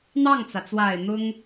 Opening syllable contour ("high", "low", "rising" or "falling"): falling